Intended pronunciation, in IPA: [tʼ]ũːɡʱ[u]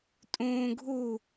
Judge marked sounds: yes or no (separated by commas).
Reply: yes, yes